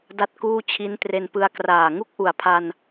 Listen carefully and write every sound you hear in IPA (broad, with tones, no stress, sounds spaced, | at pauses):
d a˥˩ t̚ k uː˥˩ t͡ɕʰ i˦˥ n t r e˧ n p ɯ˧ a̯ k r aː˨˩ ŋ u˥˩ k̚ ʔ u˩˦ a̯ pʰ a˧ n